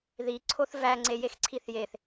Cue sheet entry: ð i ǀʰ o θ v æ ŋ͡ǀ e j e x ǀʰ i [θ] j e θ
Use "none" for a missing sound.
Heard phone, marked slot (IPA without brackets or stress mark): θ